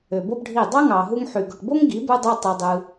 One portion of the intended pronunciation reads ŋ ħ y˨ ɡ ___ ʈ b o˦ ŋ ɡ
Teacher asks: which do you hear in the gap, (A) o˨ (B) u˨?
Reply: A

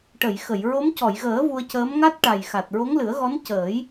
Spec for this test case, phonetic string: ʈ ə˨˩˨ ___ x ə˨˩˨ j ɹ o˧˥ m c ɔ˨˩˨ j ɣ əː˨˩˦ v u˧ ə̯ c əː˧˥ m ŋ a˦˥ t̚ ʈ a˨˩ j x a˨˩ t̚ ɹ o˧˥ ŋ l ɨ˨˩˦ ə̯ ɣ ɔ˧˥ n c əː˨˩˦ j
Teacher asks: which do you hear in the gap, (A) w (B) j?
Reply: B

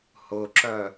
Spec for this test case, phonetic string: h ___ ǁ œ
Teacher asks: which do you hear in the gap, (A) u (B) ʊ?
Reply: B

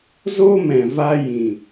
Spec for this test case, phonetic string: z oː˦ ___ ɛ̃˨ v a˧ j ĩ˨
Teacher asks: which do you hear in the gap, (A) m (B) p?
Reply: A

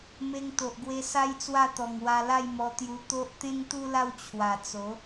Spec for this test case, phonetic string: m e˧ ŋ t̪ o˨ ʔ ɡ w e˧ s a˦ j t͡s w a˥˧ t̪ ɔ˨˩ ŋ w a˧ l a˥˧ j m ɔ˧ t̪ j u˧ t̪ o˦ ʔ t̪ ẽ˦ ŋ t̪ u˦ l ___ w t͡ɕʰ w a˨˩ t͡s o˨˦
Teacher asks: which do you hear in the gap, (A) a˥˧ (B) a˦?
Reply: A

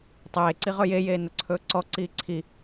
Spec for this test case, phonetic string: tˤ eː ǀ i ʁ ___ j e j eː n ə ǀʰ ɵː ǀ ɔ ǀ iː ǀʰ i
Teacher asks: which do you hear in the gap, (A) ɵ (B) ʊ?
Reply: A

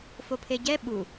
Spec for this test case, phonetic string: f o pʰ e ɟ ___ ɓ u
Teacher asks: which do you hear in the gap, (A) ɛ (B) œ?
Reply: A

